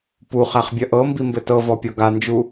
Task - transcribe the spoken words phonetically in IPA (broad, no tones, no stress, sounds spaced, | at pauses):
p u χ æ χ bʲ ɐ ʔ ɤ m b i m b ɘ t ɤ v ɔ pʲ ɔ ɡ a n d͡ʒ u